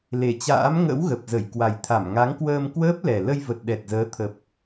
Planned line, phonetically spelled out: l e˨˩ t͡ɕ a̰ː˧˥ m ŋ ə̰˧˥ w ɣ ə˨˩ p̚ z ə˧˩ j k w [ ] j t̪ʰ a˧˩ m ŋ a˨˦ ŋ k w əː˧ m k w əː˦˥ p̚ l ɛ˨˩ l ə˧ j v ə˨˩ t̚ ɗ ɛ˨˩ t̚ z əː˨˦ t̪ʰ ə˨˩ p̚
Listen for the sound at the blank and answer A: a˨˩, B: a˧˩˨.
A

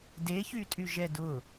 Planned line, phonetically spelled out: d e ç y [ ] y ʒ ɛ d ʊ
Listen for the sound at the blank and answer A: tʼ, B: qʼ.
A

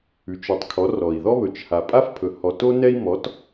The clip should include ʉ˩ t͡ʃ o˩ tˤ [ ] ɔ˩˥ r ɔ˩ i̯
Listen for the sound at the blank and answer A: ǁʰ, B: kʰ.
B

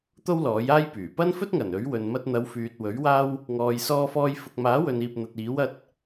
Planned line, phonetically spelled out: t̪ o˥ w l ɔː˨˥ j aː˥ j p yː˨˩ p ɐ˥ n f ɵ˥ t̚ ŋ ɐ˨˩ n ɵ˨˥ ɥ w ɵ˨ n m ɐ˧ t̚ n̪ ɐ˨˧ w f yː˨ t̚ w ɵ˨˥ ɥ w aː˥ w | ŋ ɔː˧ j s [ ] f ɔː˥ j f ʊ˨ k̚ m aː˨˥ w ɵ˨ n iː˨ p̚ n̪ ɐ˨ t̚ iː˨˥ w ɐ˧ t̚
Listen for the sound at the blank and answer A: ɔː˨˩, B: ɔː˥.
B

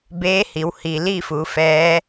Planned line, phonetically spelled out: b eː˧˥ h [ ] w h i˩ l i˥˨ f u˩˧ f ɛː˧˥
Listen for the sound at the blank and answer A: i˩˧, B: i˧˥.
A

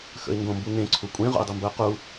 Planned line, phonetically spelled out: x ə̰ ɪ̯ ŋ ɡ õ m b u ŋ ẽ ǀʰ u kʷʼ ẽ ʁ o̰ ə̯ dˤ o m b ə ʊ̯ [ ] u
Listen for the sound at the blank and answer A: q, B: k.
A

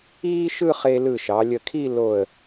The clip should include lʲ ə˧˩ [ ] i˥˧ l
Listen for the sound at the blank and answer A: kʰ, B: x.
A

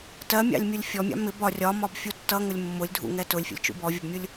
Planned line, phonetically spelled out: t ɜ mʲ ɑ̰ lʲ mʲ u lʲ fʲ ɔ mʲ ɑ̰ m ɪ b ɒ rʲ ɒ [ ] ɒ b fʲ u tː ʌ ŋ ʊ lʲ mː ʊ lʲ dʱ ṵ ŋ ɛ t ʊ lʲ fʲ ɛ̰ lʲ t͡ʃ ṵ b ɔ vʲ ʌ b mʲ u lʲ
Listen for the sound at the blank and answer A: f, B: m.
B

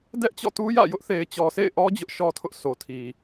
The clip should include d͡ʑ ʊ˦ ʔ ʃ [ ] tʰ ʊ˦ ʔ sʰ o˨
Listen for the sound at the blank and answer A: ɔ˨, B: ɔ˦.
B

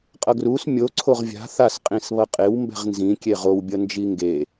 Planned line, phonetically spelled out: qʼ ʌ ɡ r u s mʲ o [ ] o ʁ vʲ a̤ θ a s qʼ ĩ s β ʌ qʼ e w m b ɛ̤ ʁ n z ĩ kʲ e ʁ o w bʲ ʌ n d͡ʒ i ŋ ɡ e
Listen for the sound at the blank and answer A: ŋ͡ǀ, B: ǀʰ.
B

